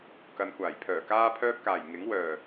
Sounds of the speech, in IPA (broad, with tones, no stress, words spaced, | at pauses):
kɐ˨nkʷaː˨˩jpʰœː˨˩ kaː˧pʰœː˧p̚kaː˨˩j ŋɪ˨˥ŋ wœː˨˩